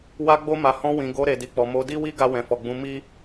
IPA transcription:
w a˧ ɡ͡b o˧ m a˨ h ɔ̃˧ w ĩ˨ ɡ o˧ ɾ e˨ d i˨ k͡p ɔ˨ m o˨˦ d i˦ w i˦ ɡ a˧ w ɛ̃˨ f ɔ˨ ɡ͡b ũ˨˦ m i˦

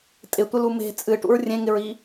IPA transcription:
tʼ ɪ tʷ ɪ l u m e̤ t͡sʼ ɨ ʈ ṵ ɹ rʲ ẽ ŋ ɪ ɹ i

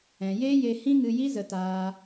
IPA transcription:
ɛ̃˨ j eː˦ j e˧ h ĩ˦ ŋ ɨ˧ j i˦ z ə˧ t aː˧

